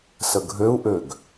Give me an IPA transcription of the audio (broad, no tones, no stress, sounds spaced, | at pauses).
s ə ɡʱ ø u̯ ʔ ø ɡ